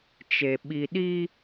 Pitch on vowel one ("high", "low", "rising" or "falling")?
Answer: low